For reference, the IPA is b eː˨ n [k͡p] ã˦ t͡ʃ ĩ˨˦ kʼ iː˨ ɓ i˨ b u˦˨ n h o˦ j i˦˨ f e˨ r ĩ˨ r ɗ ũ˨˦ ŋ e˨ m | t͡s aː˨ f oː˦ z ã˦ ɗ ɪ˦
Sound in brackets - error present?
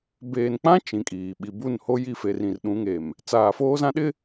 no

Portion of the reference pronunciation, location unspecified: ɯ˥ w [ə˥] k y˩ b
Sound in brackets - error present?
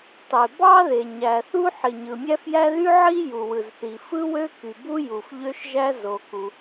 yes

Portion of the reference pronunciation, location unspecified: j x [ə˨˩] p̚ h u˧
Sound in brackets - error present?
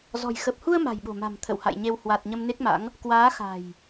no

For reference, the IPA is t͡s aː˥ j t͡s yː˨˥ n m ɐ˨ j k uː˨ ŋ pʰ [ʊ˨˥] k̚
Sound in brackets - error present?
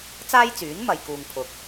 yes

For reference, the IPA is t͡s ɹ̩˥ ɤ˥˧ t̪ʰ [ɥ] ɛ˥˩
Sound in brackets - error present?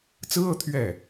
no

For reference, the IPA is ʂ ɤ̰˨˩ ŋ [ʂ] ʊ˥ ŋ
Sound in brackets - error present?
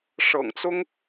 yes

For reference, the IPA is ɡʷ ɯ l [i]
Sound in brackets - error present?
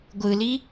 no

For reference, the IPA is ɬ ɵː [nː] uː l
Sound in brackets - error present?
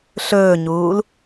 yes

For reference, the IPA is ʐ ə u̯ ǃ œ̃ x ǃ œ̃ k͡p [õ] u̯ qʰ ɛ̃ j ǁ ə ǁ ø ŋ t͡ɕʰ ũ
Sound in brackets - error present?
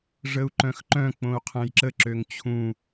no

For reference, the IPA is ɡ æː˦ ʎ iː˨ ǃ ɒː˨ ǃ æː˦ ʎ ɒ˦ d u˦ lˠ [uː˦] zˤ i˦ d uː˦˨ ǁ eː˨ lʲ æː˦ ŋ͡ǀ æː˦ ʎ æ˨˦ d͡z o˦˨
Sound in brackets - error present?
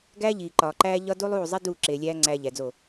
yes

